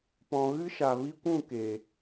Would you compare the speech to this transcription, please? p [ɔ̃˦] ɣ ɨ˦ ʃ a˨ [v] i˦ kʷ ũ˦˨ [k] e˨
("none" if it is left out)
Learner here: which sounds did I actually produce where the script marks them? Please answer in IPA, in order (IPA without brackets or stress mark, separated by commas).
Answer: ɔ̃˨, v, k